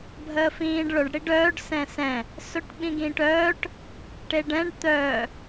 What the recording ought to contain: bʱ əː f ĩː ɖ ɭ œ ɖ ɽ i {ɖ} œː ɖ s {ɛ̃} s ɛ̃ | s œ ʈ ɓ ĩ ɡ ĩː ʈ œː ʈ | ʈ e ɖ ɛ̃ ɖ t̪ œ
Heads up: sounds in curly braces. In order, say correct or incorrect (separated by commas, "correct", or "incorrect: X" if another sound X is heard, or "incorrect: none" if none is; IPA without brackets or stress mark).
correct, correct